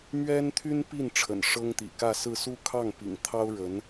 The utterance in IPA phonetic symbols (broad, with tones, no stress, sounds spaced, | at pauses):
m ɥ ɛ˥ n t̪ʰ y˥ n p i˥˩ n ʈ͡ʂʰ ə̰˨˩ n ʂ ɤ˥ ŋ t̪ ḭ˨˩ k ä˥˧ s ɹ̩˥˧ s u˥˧ kʰ ɑ˥˩ ŋ p ḭ˨˩ ŋ t̪ʰ ɑ˥ ʊ̯ ɻ ə˧˥ n